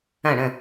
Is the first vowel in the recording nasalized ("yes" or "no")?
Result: yes